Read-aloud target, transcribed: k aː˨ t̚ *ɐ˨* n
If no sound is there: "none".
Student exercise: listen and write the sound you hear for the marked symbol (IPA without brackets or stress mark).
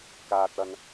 ɐ˨